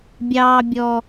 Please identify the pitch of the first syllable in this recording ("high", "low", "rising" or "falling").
low